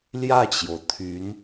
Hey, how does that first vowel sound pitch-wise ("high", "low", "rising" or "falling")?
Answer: falling